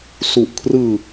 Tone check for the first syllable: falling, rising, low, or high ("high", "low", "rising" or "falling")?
low